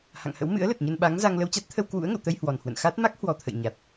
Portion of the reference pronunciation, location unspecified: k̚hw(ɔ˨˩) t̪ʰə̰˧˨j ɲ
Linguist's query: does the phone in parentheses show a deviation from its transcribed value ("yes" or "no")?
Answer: no